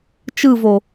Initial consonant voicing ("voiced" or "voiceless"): voiceless